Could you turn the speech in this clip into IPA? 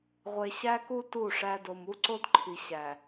ʁʷ e˨ ɕ æ˦ k u˦ t u˦˨ ʂ æ˦ d o˨ m u˦ ǀ o˦ d ǃʰ i˨ ɕ æ˨

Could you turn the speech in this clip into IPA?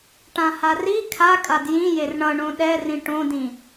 ʈ ã h a r i kʰ a kʼ a d j ĩ j e r ɳ ʌ ɳ õ ɗ ɛ r ĩ ʈ õ d ĩ

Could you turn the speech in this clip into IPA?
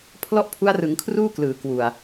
pʰ l ɔ˥˩ ʔ pʰ u˦˥ a̯ r ɯ˩˦ ŋ kʰ r uː˥˩ k l ɯː˩˦ k w u˨˩ a̯

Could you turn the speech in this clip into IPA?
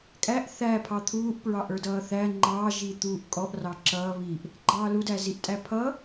kʼ æ ʔ θ æ pʰ ɑ t̪ʰ uː ʔ p ɹ ɑ ʔ ə˞ d ʌː θ æ ŋ͡ǃ ɑ ʒ i t̪ uː ʔ kʼ ɔ ʔ r ɑ ǁ ʌː β i ʔ | ɡ͡ǃ ɑː l u d æ z i ʔ tʼ æ pʰ ʌ

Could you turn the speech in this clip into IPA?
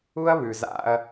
u˦ ɐ̯ β ʉ˨ z a̰˦ ɐ̯

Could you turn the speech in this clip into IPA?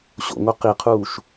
ɕ o̰ ŋ o q i qʰ uː ʃ

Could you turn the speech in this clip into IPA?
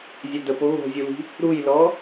zʲ ɵ d̪ ə p o ɣ o̤ zʲ u l i̤ | ɾ u j l ɔ

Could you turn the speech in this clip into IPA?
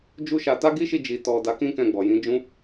d͡ʒ u˦ ʃ a˧ t a˦ ɡ i˦ ʃ i˧ d͡ʒ i˨ t ɔ˨ d a˨˦ k ĩ˦ k ɛ̃˧ ɡ͡b ɔ˨ j ĩ˨˦ d͡ʒ ũ˦

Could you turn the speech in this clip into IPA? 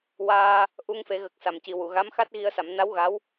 w aː˧ | ʔ u˧ ŋ f e˨˩˦ ɣ ə˨˩ k̚ s a˨˩ m c i˨˩ w u˨˩˨ ɣ a˧˥ m x a˦˥ t̚ ɣ i˧ ə̯ s a˨˩˦ m n a˧˥ w ɣ a˧˥ w

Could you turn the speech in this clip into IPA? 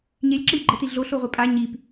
ɲ e lʲ ǁ ə lʲ ɡ͡ǃ ə t i ɮ o ɬ o ʁʷ e pʼ a ɲ i p

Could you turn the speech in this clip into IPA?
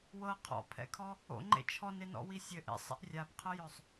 w ɤ qʰ ɔ̰ pʰ ɛ̰ kʰ ɔ | o̰ ŋ͡ǃ ḛ t͡ʃʰ ɔ n e n ɔ̰ w i sʲ ɘ ʔ ḛ sˤ ḛ ʔ rʲ a b qʰ ɤ j œ sˤ

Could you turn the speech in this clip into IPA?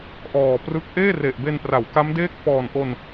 ʔ ɔː˨˩ p r ɯ˦˥ k̚ ʔ eː˥˩ r e˨˩ ʔ b e˧ n p r a˩˦ w k a˦˥ m d eː˥˩ k̚ f ɔː˨˩ n ʔ o˧ n

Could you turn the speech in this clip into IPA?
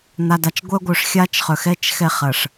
n̪ a˨ d a˨ t͡ʃ ɡʷ œ˦ ɡʷ œ˨ ʂ xʲ a˦ t͡ʃ χ œ˨ x ɛ˦ t͡ʃ x ɛ˦ χ ɐ˨ ʂ

